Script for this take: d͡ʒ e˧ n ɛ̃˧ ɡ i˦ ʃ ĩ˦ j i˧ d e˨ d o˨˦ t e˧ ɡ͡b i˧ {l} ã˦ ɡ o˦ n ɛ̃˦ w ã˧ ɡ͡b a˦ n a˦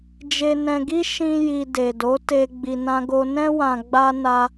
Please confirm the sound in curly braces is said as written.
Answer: no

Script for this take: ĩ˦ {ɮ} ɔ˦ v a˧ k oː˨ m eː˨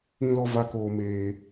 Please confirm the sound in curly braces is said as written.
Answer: no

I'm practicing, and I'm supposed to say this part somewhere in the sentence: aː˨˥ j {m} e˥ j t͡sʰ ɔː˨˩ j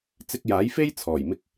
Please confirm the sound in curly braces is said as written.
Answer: no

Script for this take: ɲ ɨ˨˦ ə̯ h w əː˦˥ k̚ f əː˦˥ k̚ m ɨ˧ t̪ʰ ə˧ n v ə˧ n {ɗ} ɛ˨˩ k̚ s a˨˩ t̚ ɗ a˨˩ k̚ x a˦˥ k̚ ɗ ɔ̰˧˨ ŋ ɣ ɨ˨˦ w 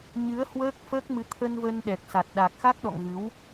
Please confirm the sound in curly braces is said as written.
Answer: yes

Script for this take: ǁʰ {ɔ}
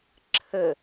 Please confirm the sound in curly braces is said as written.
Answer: no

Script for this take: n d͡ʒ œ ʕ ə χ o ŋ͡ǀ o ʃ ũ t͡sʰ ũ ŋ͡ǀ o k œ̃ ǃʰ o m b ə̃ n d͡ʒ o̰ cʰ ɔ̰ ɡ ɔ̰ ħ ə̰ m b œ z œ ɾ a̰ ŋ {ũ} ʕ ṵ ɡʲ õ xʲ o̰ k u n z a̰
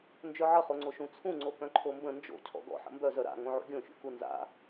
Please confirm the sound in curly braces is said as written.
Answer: no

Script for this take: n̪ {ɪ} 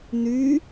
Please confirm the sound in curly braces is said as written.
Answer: no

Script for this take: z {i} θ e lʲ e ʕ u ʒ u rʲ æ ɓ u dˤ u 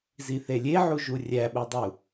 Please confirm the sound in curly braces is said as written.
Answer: yes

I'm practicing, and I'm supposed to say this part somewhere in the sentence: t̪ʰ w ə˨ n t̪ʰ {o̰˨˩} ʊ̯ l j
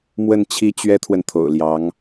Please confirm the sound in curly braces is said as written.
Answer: yes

